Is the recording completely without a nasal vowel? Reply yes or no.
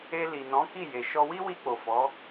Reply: no